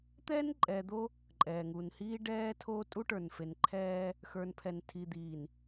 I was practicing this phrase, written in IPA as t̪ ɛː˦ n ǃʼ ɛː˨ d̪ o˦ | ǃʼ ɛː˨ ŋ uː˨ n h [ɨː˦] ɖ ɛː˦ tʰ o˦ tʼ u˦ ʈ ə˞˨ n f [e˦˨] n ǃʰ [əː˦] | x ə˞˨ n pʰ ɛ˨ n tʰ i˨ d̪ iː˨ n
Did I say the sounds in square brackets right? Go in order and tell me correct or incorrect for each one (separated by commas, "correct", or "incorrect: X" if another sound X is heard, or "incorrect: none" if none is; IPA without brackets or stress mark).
incorrect: iː˦, incorrect: e˨, incorrect: ɛː˦